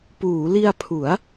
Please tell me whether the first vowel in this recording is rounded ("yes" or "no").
yes